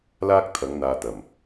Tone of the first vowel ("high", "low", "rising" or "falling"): high